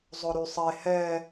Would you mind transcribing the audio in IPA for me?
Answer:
zˤ ɵ ɾ y sˤ e h ɛ

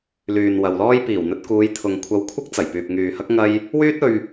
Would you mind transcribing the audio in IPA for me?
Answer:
l yː˨ n w ɐ˨ w l ɔː˥ j p iː˨˩ w n̪ ɵ˧ t̚ k uː˨˧ j t̪ʰ ʊ˨ ŋ kʷʰ ɐ˧ w kʷʰ ɪ˥ k̚ t͡s ɐ˨˩ j p yː˨ p̚ ŋ yː˨ h ɐ˥ k̚ ŋ ɐ˥ j | w yː˥ t̚ ɵ˧ ɥ

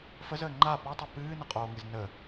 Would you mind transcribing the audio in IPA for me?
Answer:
f ə z əː ŋ͡ǃ a p ɔ tˤ i p ɨː n ə qʼ oː ŋ ɨ z n ə

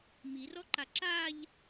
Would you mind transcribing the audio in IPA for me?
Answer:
m i r ɔ ǃ a ǁ a ʎ

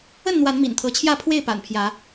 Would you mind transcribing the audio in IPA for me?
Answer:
ə˥˨ n n̪ w a˨˦ n m ḭ˨˩ n t̪ʰ ɤ˨˦ t͡ɕʰ j ä˥˨ pʰ w e˥˨ ɪ̯ p a̰˨˩ n pʰ j ä˨˦

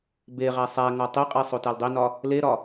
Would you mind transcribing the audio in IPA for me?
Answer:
b e ʁ æ sˤ æ ŋ ɒ tˤ i qʼ e sˤ o t æ l dˤ i n ɒ | l e ɾ ɒ

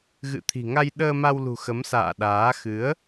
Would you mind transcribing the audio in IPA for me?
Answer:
ɣ ɨ̰˧˨ t̪ʰ i̤˨˩ ŋ a˧ j ɗ əː˧ m a˧ w l ṳ˨˩ x ə˨˦ m s a̰ː˧˨ ɗ aː˨˦ x ɨ˨˦ ə̯

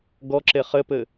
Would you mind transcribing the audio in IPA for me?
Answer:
ɡ ɔ ǁ e χ ɘ p ɘ

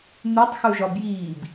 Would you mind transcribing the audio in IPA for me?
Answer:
n̪ u tˤ x u ʒ ɒ b j iː b

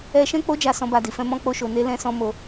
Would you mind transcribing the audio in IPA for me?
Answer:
ɛ˧ ʃ ɛ̃˦ k͡p o˦ d͡ʒ a˧ s ɔ̃˧ b a˧ d i˨ f ɛ̃˧ m ɔ̃˧ k͡p o˧ ʃ o˨ n e˧ l ɛ̃˦ s ɔ̃˦ m o˧

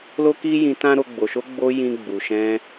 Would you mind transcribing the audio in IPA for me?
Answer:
l o˦ k i˦ j ĩ˧ t ã˦ ɾ o˧ ɡ͡b o˨ ʃ o˧ ɡ͡b o˧ j ĩ˧ ɡ͡b u˨ ʃ ɛ̃˧

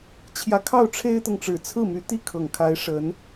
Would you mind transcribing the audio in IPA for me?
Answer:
t͡ɕʰ j ä˧˥ kʰ ɑ˥˩ ʊ̯ ʈ͡ʂʰ e˥ ɪ̯ t̪ ɤ˨ ŋ ʈ͡ʂ ɻ̩˨˩ t͡sʰ ɹ̩˥˩ m y˧˥ t̪ i˥˩ kʰ ɤ˨˩ ŋ kʰ a˧˥ ɪ̯ ʂ ə˧˥ n

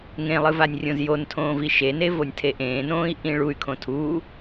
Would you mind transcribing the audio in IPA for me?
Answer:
ŋ ẽ lˠ ɨ v a nʲ rʲ õ z j o n tʰ õː v i ʃ e n e v o nʲ tʰ e ʔ ẽː n õː i̯ ʔ ĩ ɭ u y̯ kʰ õ tʰ u

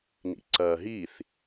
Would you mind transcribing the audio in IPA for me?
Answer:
n ḭ ǀ ɐː ɦ i θ

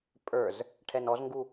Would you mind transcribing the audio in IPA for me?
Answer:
pʼ ə˞ z | ʈʰ ɛ n ɔ z ŋ ɡ u

